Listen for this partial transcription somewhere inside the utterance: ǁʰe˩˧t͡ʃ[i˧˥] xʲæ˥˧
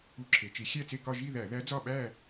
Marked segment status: incorrect: i˩˥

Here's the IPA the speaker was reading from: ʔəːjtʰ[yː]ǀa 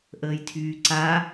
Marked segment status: correct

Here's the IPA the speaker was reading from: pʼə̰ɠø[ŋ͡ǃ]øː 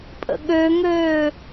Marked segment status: incorrect: ŋ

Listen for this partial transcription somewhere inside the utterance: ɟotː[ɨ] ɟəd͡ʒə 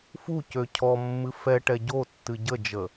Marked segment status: correct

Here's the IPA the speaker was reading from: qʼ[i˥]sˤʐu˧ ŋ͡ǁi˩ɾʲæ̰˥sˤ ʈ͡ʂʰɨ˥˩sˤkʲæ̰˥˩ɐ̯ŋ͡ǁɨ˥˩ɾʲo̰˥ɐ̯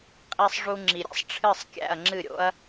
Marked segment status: incorrect: i˧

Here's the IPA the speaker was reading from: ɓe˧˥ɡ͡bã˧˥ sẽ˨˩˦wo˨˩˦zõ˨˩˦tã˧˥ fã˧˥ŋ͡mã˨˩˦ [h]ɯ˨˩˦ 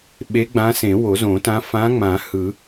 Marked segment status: correct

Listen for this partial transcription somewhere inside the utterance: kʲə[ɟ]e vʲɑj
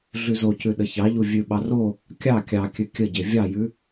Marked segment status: correct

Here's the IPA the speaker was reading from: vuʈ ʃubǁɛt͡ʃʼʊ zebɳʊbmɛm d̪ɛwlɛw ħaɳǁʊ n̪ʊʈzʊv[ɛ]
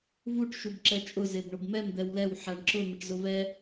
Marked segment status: correct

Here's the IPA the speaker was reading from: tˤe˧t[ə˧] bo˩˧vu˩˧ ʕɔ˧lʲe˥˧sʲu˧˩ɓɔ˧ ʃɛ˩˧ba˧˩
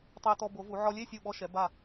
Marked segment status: incorrect: ɔ˧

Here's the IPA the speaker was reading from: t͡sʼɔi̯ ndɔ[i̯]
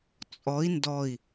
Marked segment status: correct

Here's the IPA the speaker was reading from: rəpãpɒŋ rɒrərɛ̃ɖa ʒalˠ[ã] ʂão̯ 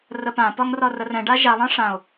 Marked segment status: correct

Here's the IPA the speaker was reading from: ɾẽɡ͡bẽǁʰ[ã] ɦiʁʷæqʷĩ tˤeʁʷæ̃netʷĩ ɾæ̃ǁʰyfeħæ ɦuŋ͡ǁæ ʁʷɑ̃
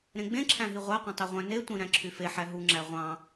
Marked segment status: incorrect: æ̃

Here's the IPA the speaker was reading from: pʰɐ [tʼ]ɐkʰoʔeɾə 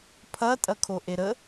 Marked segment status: correct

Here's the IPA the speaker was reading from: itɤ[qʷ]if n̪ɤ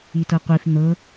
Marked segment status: correct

